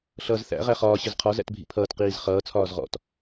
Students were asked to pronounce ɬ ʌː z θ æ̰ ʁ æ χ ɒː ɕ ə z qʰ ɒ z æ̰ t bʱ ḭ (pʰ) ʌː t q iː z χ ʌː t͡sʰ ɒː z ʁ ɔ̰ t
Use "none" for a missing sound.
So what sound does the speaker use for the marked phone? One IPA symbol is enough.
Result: pʰ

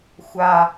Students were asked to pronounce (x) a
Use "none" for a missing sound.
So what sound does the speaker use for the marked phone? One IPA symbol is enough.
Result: xʷ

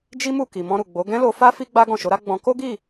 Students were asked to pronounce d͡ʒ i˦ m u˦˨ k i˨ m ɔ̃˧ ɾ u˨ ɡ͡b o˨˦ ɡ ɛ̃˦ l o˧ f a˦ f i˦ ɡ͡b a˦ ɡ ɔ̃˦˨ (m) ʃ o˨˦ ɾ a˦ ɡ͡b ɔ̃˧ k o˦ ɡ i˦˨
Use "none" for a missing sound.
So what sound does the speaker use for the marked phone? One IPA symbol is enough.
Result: none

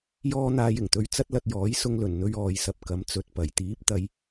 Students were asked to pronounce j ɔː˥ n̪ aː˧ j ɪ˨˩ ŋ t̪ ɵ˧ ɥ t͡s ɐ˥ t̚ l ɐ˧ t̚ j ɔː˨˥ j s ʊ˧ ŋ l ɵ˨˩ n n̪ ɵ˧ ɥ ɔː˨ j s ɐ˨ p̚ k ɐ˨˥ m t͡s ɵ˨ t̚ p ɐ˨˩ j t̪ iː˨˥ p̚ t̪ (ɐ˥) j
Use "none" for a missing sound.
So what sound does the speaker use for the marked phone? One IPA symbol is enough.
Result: ɐ˨˧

